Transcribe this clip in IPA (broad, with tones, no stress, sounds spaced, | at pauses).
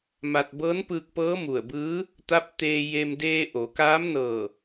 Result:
m a˧ t̚ b ɤː˧˥ n p ɯː˧ k̚ p ɤː˧˥ m u˧˩ ə̯ b ɯː˧˥ | t̪ a˧˥ p̚ t̪ eː˧ j e˧ m d eː˧ ʔ o˩˧ k aː˧˥ m n ɤː˧˩